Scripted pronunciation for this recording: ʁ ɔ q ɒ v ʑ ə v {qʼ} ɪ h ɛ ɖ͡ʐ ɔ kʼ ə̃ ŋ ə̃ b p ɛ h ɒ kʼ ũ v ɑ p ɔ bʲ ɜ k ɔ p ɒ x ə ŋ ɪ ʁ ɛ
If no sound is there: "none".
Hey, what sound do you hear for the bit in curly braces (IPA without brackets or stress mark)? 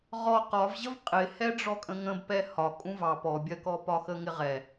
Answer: qʼ